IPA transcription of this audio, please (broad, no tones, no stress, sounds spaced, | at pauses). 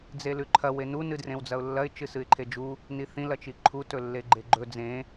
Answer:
d͡z e l ʉ ǃʰ ɐ w e n u n ɨ d r ẽ w d͡z ɐ ʊ̯ lː ɐ ɪ̯ t͡ʃ ɨ s ɨ ɪ̯ ǃʰ e d͡ʒ u | n i θ ĩ l ɐ t͡ʃ i ǃʰ u t ɵ lː e ɡ͡ǃ e ɡ͡ǃ ɵ d͡z ẽ